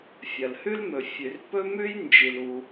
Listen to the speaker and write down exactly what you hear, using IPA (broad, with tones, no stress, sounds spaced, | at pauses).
fʲ ɐ˩ l h ʉ˥ l m ɵ˩ fʲ ʉ˩ r p ɵ˥ m ʉ˥ j n d͡ʒ i˩ l u˩